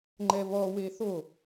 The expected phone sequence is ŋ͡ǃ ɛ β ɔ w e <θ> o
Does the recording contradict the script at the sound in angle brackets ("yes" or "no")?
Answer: no